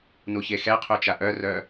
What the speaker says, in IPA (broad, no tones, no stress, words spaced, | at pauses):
nuçexɛqʰu t͡ʃaʔœrœ